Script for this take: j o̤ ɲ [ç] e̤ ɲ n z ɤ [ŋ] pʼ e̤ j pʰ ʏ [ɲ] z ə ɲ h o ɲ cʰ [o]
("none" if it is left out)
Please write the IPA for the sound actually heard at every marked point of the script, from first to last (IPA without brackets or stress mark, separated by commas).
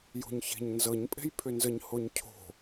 ç, ɲ, n, o̤